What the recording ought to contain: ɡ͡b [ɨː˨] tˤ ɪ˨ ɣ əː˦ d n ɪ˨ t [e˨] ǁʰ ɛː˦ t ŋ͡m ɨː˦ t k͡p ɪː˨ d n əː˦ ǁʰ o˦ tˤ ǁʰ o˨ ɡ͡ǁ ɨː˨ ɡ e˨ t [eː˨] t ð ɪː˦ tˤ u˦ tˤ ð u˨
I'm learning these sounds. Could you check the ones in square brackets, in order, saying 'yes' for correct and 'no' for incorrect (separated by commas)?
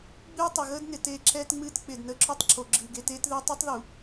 no, no, no